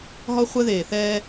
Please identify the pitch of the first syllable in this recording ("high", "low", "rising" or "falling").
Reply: high